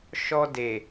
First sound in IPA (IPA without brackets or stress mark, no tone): ʃ